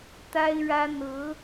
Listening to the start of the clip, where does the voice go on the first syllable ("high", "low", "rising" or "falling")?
high